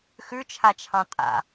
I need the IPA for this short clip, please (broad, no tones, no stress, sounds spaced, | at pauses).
x ʉ t͡ʃʰ a t͡ʃʰ ɑ̃ tʼ a̰